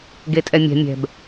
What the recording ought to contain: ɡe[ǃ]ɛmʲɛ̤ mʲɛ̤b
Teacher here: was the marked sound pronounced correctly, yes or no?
no